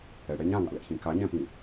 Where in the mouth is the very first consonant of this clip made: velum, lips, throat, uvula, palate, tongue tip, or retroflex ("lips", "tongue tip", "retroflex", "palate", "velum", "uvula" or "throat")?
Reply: retroflex